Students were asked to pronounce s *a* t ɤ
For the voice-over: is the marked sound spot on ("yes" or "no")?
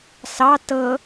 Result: no